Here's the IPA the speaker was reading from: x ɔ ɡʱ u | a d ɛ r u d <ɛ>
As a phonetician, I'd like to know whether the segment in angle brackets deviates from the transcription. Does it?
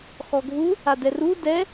no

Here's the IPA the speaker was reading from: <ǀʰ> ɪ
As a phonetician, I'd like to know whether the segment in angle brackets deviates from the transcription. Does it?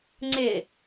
yes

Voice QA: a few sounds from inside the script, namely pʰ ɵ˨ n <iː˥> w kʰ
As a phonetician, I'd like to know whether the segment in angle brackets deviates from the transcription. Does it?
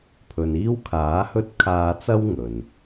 no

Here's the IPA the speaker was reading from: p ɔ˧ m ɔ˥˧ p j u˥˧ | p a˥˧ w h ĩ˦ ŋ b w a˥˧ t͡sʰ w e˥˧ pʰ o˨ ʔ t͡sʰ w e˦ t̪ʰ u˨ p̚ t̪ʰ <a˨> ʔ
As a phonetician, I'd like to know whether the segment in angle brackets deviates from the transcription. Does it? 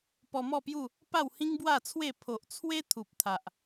no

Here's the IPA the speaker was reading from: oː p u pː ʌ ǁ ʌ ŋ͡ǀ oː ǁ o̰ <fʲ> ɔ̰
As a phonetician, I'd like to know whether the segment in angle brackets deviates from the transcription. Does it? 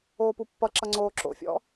no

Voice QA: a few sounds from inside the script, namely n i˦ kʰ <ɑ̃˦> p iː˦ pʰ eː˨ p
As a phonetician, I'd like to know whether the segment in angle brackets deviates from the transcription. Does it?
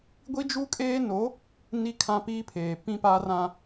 yes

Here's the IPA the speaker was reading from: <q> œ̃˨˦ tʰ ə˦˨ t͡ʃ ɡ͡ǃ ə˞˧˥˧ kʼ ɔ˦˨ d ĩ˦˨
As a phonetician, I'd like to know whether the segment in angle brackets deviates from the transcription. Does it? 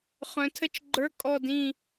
yes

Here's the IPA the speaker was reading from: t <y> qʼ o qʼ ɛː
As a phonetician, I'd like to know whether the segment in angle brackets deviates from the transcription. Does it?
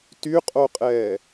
no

